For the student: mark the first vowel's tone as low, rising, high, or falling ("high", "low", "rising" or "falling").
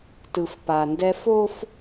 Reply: low